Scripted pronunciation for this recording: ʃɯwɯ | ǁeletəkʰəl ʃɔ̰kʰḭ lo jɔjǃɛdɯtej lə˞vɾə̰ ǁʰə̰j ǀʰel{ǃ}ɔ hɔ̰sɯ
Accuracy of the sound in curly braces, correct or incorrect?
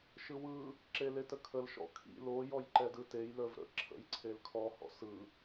incorrect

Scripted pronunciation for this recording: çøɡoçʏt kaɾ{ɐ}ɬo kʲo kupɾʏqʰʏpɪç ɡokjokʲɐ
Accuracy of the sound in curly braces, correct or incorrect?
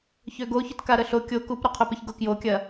incorrect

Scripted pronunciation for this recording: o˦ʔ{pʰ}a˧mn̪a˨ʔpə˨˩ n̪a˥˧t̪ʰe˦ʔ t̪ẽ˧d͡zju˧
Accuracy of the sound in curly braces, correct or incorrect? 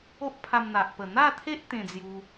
correct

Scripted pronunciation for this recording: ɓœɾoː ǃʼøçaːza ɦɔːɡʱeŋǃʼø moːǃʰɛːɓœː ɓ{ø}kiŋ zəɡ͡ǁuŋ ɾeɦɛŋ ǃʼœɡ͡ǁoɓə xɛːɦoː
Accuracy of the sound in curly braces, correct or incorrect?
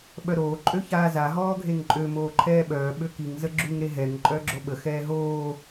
correct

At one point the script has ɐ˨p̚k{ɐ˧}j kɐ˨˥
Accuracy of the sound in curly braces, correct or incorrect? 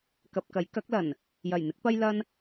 incorrect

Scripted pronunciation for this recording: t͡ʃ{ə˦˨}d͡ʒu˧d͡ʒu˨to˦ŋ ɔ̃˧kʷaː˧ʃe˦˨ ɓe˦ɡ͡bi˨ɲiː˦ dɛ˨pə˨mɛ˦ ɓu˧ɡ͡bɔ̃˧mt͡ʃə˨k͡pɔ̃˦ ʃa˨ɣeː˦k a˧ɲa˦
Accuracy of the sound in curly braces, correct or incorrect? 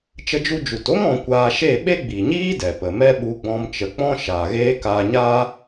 incorrect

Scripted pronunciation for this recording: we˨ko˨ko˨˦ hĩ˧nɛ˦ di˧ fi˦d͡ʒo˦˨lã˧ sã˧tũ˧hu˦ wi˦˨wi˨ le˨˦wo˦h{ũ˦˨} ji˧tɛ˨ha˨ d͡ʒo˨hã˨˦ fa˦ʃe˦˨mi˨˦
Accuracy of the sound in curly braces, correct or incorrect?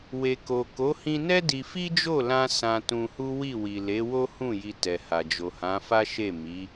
correct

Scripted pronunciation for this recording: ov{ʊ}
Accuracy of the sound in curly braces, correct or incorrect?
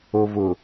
correct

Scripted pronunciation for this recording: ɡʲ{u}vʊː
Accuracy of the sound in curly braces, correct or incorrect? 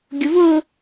incorrect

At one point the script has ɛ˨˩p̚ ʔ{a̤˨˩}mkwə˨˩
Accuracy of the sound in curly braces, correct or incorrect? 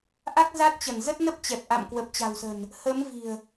incorrect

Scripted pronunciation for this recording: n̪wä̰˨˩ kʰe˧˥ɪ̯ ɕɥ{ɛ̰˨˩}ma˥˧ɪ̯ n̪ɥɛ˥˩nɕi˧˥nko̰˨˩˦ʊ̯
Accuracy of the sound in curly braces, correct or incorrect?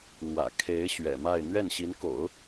correct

